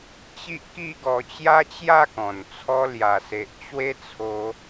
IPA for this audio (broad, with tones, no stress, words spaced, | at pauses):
t͡ɕi˦ʔki˥˧ ɡɔ˧t͡ɕja˦t͡ɕja˥˧kɔ̃˨˩n t͡sʰɔ˧lja˨˩se˨ʔ t͡ɕwe˦t͡sʰo˧